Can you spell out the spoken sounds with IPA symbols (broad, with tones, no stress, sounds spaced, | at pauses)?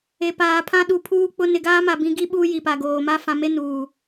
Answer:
e˨ p aː˨ pʰ ã˦ ɗ u˨ pʰ uː˦ k͡p ʊ˦ n ɪ˨ ɡ aː˦ m a˨ b ĩ˦ ɡ i˦ ɓ uː˦ j i˨ p a˨ ɡ oː˨ m a˦ f ã˨ m e˦ n uː˨